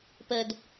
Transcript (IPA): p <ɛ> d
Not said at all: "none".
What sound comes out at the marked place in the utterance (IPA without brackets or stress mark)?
ə